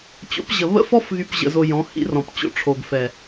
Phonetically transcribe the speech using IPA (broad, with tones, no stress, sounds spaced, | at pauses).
t͡ɕ o̰˨˦ p ʑ ə˨ β ə̰˦ f ɔ˦ f ɣ y˨ p ʑ ə̰˨ z o˧ j ɔ̃˨˦ h ḭ˦ r ɔ̃˨ p t͡ɕ o̰˦ ʈ͡ʂʰ o˨ ɡ f ɛ˨